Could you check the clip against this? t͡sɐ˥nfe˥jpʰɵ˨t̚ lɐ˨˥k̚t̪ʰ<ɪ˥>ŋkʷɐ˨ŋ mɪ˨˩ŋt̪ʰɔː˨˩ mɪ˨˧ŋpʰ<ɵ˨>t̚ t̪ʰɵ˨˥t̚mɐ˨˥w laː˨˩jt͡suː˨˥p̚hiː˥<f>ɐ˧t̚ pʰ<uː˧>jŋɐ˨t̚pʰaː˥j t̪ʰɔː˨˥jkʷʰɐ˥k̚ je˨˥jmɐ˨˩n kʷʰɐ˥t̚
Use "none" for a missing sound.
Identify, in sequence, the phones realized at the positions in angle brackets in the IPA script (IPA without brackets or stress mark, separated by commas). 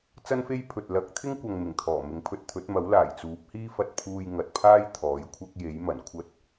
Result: ɪ˥, ɵ˧, f, uː˧